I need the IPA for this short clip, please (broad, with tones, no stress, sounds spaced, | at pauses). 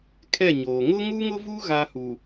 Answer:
kʰ ɛ˦˨ ɲ oː˨ ŋ ʊ˦ ŋ u˦ ŋ ʊ˦ v u˦ ɣ a˦ h u˨